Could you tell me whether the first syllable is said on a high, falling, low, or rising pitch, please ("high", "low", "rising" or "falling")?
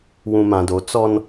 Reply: low